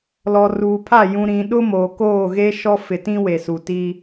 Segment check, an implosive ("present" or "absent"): present